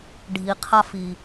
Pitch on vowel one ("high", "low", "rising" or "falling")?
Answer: low